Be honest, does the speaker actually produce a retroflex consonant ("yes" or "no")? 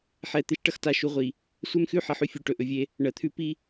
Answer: yes